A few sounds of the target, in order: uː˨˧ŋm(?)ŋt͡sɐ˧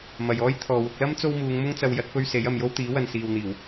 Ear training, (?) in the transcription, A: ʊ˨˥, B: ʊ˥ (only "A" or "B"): B